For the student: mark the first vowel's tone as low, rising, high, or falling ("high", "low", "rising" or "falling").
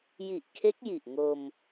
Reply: low